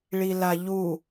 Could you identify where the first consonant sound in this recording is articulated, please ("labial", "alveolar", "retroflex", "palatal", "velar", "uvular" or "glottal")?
retroflex